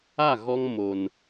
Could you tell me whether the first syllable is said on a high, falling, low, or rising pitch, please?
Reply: falling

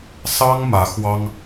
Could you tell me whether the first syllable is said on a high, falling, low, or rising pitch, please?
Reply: high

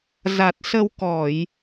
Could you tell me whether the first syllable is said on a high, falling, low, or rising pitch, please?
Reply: low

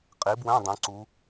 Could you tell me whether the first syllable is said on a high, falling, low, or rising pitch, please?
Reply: rising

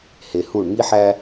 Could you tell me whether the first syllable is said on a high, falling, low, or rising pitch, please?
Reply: low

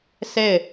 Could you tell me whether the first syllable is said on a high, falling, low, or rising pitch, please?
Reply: falling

